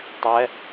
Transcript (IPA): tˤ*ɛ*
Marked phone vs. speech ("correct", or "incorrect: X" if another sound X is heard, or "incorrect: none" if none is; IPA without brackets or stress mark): correct